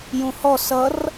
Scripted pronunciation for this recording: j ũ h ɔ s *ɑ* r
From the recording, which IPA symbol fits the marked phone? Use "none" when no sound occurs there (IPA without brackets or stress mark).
ʌ